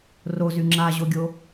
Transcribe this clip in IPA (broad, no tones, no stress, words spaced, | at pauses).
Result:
rozy ŋ͡ǁaʑoɡʲo